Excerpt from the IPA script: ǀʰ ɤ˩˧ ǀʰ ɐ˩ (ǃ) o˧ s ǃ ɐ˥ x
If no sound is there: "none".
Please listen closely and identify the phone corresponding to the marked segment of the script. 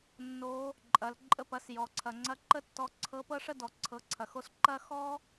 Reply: x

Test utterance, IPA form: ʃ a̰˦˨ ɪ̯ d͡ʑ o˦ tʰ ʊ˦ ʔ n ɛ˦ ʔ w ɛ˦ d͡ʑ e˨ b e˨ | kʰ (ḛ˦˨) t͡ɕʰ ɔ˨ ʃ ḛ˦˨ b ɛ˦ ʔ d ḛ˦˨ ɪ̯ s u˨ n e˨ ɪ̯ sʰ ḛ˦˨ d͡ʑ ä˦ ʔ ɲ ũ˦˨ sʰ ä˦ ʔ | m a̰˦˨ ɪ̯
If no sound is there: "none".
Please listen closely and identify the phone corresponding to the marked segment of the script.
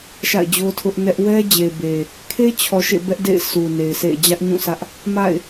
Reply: e˦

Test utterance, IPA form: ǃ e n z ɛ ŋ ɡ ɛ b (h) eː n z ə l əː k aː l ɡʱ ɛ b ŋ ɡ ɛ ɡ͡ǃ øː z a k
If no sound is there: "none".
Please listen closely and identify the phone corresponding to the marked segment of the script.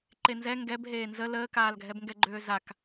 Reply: ɦ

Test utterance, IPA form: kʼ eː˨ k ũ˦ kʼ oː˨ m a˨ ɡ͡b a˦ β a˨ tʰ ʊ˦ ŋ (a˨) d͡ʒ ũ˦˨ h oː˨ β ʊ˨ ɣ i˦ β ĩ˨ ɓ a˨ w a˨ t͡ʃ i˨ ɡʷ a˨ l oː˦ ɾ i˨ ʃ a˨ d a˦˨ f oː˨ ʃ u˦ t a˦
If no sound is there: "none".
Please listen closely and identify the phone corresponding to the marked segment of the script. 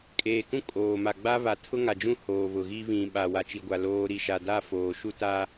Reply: a˨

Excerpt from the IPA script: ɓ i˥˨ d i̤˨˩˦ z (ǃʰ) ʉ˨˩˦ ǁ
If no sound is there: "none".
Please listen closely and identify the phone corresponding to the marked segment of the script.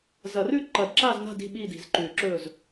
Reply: ǃ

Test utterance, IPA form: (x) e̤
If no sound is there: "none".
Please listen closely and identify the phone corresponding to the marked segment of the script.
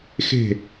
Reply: x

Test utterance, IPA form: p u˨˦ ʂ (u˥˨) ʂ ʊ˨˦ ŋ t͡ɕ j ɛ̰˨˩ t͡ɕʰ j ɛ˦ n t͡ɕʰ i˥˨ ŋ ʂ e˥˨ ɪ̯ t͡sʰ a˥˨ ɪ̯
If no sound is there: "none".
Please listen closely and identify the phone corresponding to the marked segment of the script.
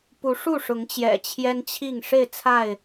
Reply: u˥˨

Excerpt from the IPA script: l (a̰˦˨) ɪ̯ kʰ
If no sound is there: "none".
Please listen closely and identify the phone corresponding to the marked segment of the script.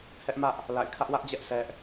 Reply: a̰˦˨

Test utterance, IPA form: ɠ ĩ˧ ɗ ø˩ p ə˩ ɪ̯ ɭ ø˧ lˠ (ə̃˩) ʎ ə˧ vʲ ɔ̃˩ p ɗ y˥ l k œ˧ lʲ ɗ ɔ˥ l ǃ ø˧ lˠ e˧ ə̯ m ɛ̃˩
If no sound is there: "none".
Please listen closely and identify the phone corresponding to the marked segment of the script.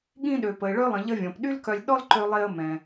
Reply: ə̃˩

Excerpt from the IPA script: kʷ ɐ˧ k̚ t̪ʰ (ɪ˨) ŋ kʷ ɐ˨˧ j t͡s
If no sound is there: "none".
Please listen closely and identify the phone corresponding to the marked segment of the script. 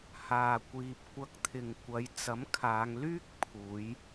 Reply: ɪ˨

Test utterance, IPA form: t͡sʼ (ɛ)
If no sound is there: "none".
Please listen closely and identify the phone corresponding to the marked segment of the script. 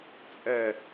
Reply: ɛ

